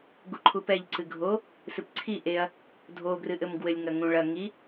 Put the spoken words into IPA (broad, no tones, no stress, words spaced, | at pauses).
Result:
ɡuǃʰupɛʎ ǀɨɡʱo | sɨpǀʰi ʔeɐ̯ | dʱoɡrɨ ʔɘmɡwɘlʲ ŋɐŋũɭɐ ŋi